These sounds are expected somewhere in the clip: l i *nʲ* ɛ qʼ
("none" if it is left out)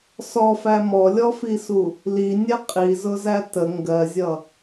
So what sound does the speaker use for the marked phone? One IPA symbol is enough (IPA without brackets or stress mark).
nʲ